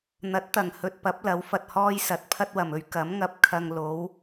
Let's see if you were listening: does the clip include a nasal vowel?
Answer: no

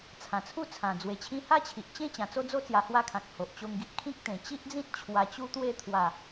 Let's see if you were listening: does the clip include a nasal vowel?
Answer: yes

